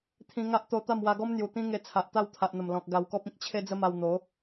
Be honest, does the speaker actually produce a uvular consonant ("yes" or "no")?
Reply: no